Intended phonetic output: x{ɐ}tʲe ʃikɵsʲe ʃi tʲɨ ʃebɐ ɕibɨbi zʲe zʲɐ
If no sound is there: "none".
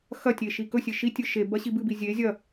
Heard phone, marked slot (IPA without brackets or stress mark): ɐ